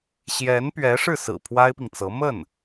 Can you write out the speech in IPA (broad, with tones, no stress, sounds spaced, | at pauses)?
ɕ j ɛ˧˥ n p ɥ ɛ˧˥ ʂ ɻ̩˥˩ s ɹ̩˨˩ pʰ w a˥ ɪ̯ p i˨ ŋ t͡s ɤ˧˥ m ə˥˩ n